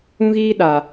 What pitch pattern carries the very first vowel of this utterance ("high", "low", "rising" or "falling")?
high